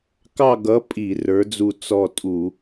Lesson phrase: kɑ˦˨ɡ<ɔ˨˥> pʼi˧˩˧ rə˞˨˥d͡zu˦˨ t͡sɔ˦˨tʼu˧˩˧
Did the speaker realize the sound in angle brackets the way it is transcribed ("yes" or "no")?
no